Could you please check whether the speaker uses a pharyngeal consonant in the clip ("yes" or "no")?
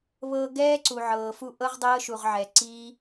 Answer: yes